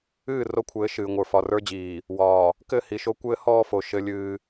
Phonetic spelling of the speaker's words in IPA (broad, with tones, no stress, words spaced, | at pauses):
ɨː˦˨ ro˦kʷʰɘː˨˦ ʃɨː˨ŋʷə˞˨ fɒ˨rə˞˦d͡ʑiː˨ | wɒː˨ | kɘ˦˨ hi˨ʃo˦ kʷɘː˦hɔː˦fo˨ ʃɘ˦lʲɨː˦